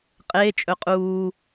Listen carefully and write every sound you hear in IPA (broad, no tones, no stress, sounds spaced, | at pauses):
qʼ eː t͡ʃʼ ɵ qʼ uː